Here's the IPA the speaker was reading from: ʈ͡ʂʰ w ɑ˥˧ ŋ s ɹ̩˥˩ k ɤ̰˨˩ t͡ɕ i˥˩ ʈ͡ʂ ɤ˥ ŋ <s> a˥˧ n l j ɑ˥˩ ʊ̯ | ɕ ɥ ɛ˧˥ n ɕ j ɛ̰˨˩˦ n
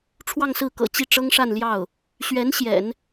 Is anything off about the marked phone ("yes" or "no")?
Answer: yes